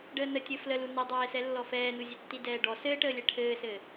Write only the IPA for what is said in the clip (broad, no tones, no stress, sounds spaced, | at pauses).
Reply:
ɖ əː n ə tʲ ɘ f l ə l u n i dˤ ɛː s ɛ lː ɔ f ɛː n u zʲ ɛ tː i d ɛː ɖ ɔ s ɘː ʈ əː lʲ ɛ ʈʰ ɘː s ɘː